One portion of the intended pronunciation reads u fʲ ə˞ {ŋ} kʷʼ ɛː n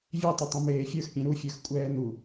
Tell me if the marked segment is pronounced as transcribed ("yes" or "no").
no